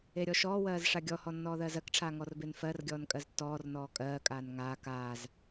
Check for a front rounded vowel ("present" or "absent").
absent